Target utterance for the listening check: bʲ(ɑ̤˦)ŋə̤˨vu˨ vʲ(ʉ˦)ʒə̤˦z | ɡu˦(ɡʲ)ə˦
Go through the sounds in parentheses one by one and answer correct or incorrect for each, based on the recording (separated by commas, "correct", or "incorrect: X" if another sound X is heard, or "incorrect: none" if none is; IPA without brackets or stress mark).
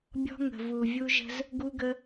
incorrect: ɔ̤˦, incorrect: u˦, incorrect: ɡ